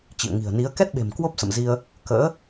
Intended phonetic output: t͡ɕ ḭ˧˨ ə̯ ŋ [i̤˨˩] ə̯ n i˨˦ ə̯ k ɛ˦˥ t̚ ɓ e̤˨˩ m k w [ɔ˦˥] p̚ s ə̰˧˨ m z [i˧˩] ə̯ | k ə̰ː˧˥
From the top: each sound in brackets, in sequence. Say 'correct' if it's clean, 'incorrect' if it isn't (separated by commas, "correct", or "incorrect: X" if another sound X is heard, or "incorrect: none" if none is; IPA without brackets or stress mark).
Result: correct, incorrect: o˦˥, incorrect: i˧